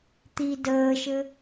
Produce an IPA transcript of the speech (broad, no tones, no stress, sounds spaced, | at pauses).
t̪ i d əː ʃ ɘ